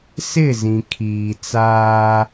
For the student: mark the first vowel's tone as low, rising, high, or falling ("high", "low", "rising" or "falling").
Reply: falling